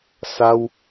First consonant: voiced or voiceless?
voiceless